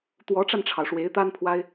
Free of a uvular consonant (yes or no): yes